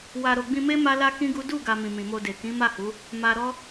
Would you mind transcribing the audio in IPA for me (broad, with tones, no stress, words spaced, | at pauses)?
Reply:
wa˨ɾo˨ɡ͡bĩ˧me˦ ma˦la˦ kĩ˦ɡu˦ du˦˨ɡa˨ mĩ˨mĩ˨mo˧de˨ kĩ˨˦ma˦˨hu˨˦ | ma˧ɾɔ˦